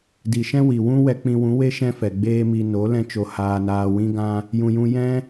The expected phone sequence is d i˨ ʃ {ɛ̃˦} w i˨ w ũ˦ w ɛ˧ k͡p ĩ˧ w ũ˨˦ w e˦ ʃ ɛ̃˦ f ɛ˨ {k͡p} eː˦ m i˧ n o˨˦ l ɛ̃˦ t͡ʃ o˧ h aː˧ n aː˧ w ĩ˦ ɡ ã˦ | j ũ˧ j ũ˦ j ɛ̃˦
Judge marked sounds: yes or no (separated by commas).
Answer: yes, no